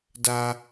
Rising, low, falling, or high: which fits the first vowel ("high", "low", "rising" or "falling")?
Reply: high